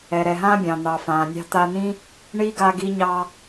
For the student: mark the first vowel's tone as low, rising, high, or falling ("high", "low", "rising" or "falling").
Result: low